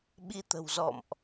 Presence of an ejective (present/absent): absent